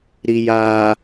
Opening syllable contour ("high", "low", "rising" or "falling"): low